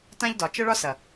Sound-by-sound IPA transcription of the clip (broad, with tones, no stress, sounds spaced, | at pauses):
t ã˦ ʎ d ɒ˨ t͡ʃ ə˦ ɭ ɒ˦ s ɐ˨